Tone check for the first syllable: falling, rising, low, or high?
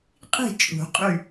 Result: falling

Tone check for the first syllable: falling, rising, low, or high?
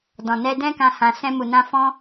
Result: low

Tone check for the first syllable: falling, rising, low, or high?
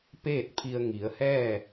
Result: falling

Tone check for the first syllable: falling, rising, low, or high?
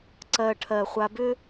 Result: low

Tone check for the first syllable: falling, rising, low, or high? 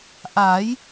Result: rising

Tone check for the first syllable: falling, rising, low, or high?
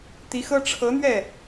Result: rising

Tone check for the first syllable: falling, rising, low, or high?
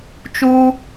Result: high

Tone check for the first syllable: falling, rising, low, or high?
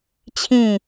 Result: falling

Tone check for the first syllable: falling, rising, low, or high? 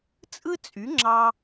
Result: high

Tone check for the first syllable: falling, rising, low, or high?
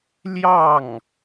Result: falling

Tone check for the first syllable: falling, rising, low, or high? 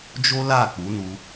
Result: high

